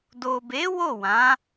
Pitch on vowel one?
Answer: low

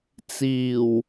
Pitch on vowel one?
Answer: low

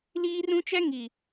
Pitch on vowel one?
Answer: high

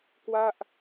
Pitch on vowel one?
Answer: falling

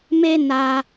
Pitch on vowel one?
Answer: high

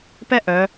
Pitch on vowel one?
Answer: high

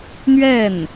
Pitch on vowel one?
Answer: falling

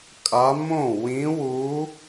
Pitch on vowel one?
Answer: rising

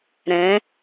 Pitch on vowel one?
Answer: rising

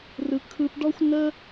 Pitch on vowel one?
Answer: low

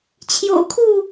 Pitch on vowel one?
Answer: low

